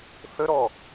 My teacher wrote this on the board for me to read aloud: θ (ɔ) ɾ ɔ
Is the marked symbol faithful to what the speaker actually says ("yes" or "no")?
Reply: no